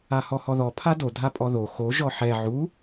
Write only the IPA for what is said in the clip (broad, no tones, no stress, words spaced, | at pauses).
ahɔhɔðɔ pʰado dʱapʼɔðo xo ʒɔħɛ ʕu